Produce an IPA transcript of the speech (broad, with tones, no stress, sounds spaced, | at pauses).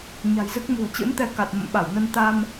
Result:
ɲ a̤˨˩ j z ɨ˦˥ k̚ m ṳ˨˩ ə̯ t͡ɕ ɨ̰˧˥ n t̪ ɛ˧ k a˨˩ t̚ m ə̰˧˨ m ɓ a˧˩ w n ə˧ n t̪ a˧ m